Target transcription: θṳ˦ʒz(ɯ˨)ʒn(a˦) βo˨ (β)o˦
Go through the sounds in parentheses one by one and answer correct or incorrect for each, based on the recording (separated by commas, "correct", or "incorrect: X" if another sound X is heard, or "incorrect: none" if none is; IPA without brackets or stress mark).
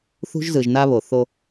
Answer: correct, correct, incorrect: θ